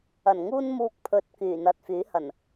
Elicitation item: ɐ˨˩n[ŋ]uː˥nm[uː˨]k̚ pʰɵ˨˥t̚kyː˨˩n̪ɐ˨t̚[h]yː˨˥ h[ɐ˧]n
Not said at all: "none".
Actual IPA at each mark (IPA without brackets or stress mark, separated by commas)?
ŋ, uː˧, f, ɐ˨˩